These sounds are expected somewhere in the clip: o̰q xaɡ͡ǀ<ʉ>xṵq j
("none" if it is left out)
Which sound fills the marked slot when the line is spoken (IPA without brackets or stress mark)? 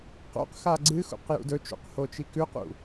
ɨ